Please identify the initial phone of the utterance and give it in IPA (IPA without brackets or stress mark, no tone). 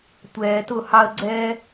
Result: tʷ